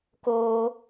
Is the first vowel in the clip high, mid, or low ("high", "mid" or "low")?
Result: mid